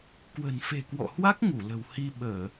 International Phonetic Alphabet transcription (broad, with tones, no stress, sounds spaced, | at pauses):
k w ə̤˨˩ n f e̤˨˩ k w ɔ̰˧˨ h w a˦˥ k̚ ŋ u˧˩ l ə̤˨˩ w h i˧ ɓ əː˧˩˨